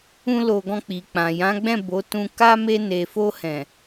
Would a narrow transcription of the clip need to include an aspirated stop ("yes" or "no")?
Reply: no